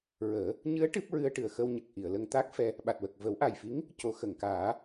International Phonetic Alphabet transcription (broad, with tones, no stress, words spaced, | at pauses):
ɹəː˨˩˦ | ɲɨ˧˥ə̯ ʈɨ˦˥p̚ ɹɨ˧ə̯ʈɨ˨˩ə̯xə˧w ɲə˨˩k̚ ʔi˨˩˨ə̯lə˧ŋ t̪a˦˥k̚fɛ˧ | ɓa˨˩t̚wə˨˩k̚ və˨˩˦wʔa˨˩jfi˧˥ŋ | co˨˩˦xə˨˩˨ŋkaː˨˩˦